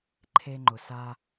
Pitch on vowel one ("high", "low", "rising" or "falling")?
high